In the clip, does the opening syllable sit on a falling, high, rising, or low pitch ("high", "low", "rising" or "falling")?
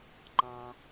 low